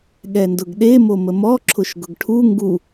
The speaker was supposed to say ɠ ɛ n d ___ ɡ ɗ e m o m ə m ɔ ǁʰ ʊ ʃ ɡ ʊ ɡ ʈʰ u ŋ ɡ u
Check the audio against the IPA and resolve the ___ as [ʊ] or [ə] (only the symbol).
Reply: ʊ